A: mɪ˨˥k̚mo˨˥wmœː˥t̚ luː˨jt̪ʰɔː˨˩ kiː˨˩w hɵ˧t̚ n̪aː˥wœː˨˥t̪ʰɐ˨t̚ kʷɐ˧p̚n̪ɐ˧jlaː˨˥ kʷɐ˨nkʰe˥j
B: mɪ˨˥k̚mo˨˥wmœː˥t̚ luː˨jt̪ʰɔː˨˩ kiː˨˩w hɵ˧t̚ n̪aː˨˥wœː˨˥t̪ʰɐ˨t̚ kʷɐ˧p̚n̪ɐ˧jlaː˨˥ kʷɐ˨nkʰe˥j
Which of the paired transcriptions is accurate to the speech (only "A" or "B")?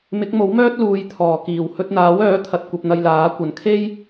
B